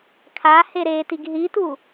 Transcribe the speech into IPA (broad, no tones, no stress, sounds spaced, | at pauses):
kʰ a h e ɾ e t i ɡ ɦ i t u